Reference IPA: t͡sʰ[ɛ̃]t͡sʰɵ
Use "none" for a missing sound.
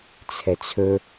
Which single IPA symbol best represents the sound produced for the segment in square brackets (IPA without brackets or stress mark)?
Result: ɛ